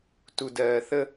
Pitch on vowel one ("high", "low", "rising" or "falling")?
low